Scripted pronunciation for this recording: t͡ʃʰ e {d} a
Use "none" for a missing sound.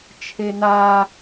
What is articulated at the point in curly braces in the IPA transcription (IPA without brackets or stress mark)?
n̪